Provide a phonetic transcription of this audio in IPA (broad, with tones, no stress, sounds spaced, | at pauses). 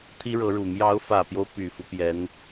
t̪ʰ i˥ ɻ ɤ˧˥ ɻ u˨˩ m j ɑ˧˥ ʊ̯ f ä˨˩ p j o˦ ʊ̯ p y˨˩ f u˦ p j ɛ˧˥ n